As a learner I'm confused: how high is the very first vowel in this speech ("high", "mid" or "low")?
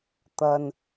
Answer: low